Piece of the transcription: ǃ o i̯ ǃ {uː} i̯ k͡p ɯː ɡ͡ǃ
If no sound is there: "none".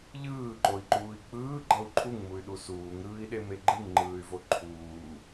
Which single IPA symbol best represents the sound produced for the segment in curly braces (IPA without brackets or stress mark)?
uː